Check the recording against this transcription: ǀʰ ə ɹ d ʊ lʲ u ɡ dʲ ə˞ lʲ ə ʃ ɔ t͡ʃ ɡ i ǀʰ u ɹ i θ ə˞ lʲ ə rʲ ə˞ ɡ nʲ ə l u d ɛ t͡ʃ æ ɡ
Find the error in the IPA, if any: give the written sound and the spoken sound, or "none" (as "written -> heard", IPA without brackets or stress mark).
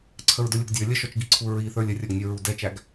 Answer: l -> ɹ